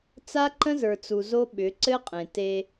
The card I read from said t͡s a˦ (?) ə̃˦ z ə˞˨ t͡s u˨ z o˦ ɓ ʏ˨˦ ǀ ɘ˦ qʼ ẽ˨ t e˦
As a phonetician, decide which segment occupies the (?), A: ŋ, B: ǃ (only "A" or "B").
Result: B